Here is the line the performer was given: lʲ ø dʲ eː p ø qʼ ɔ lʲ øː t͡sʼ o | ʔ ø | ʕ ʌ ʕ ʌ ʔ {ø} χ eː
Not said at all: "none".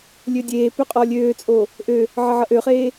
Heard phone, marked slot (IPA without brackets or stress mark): ø